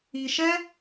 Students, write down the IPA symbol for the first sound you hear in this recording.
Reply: i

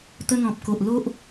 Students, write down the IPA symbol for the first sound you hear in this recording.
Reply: t̪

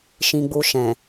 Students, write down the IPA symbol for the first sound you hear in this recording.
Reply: ʃ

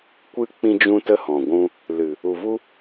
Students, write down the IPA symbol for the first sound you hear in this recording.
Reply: kʷ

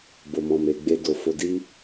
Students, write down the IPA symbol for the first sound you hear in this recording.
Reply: b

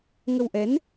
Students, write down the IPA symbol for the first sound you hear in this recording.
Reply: ŋ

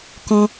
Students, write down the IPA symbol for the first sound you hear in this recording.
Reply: k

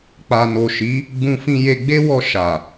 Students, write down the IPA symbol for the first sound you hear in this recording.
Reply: k͡p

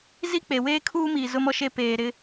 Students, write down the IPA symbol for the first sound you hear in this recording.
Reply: z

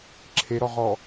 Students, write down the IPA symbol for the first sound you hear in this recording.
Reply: ǁʰ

